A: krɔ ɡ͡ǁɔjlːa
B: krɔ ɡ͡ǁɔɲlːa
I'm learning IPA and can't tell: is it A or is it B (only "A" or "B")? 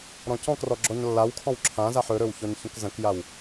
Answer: B